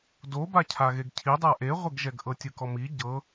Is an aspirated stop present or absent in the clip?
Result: present